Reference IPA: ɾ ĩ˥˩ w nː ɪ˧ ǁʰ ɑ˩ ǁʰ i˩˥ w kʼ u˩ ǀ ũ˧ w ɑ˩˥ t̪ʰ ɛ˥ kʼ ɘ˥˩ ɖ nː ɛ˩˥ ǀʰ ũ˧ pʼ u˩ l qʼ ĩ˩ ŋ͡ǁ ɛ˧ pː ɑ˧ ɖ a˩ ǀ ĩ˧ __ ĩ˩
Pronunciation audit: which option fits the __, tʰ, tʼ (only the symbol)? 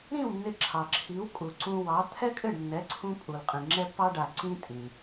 tʼ